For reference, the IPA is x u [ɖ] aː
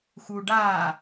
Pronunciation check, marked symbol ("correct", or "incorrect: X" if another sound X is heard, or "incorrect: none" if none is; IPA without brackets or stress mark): correct